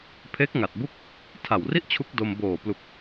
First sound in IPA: pʰ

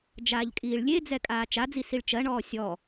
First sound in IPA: d͡ʒ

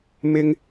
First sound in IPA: m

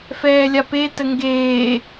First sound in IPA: f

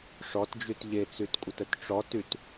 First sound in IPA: ʂ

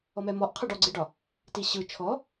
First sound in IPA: ɔ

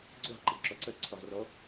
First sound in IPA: ɡ͡ǀ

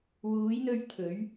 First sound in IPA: w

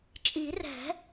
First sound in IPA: t͡ʃʼ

